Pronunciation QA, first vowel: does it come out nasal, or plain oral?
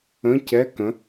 nasal